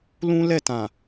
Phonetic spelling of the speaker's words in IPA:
l ũ˦ l ɛ˦˨ t ã˨

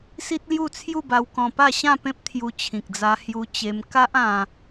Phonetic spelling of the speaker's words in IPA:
s i˦ t̚ l j u˥˧ t͡sʰ j u˥˧ b a˧ w k ɔ̃˧ p a˥˧ ɕ ã˥˧ p ẽ˦ p̚ t̪ʰ j u˧ t͡ɕʰ ĩ˨ k̚ d͡z a˧ h j u˧ t͡ɕ e˧ m k a˦ ʔ ã˧

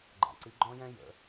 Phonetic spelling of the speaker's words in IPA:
ɡ͡ǃ a̰˩ ǀ i˩˧ ɡ͡ǃ ɔ̃˥ j ɛ̃˥ j ə̰˩˧

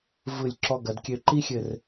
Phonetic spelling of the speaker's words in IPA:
v ɯ˧˩ lʲ ǁ ɔ˧ ɡ ɐ˩˧ d kʲ ø˧ ǃ i˥ xʲ ɘ˥˧ r

